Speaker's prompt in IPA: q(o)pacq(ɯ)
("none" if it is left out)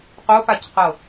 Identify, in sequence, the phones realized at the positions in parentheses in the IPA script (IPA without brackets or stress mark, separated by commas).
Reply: o, ɤ